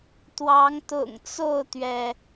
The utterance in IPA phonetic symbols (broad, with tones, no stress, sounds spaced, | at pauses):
t̪ w ɑ˨˦ ŋ t̪ ʊ̰˨˩ ŋ t͡s o˥˨ ʊ̯ t̪ ɥ ɛ˩